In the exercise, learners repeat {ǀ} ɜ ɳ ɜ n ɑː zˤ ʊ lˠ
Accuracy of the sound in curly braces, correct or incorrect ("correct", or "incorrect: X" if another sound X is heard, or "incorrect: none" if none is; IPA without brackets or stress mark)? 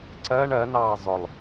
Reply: correct